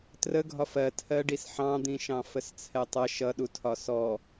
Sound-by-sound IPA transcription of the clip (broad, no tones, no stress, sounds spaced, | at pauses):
t r ə ɡʱ ɒ f ɜ tʰ ɜ ɖ i s ħ ɑ̃ d̪ ĩ ʃ ɑ̃ f ə s t͡sʰ ɛ tˤ ʌ ʃ ʌ ɗ u tʰ ɒ s ɔ